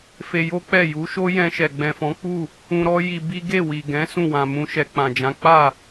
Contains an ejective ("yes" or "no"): no